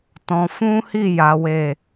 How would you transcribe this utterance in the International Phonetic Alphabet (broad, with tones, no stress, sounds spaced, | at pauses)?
t ɔ̃˧ f ũ˦ h i˦˨ j a˨˦ w e˦˨